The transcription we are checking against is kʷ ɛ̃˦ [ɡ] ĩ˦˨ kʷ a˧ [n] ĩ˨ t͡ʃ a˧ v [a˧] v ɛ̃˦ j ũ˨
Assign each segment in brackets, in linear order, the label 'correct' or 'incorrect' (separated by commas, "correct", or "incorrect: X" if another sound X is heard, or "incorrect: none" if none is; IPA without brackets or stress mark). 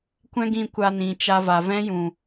correct, correct, incorrect: a˨